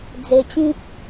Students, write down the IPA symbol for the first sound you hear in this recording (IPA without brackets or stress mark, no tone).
d͡z